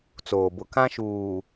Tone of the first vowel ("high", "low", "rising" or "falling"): low